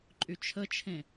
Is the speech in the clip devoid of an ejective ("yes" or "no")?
no